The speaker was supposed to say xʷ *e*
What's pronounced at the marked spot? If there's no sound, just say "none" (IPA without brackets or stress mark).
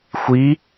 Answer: i